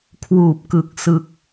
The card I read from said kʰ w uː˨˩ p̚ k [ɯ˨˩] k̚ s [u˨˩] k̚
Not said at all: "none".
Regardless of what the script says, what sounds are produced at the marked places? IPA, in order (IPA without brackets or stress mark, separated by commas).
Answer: ɯ˨˩, ɯ˨˩